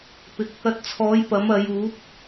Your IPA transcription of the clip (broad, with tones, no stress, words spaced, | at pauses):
pɪ˨k̚ | ɐ˧t̚t͡sʰɔː˨˥jpɐ˨˥m ɐ˨˧juː˨˥p̚